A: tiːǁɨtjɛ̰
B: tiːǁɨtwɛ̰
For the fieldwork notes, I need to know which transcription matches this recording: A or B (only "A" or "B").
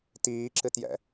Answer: A